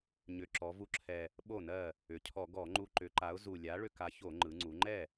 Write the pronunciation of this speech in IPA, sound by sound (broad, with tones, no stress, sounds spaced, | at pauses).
ɲ ʏ˨˩ ǁ ɔ˩˧ v u˧ ǁʰ ɛ˨˩ | ɓ o˥˩ n ɜ˥˩ | ʏ˩˧ cʰ ɔ˧˩˧ ɡ ɔ˧˩˧ ŋ͡ǃ u˧ ǃ ʏ˨˥ ǃ a˨˥ ʊ̯ z u˨˩ lʲ a˨˥ ɭ ʏ˧ k a˨˥ ç o˧˩˧ ŋ͡ǃ ɯ˩˧ ŋ͡ǀ u˩˧ ŋ͡ǃ ɛ˥˩